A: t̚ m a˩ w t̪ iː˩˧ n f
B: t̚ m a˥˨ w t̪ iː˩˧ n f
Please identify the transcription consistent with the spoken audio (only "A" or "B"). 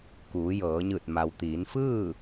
A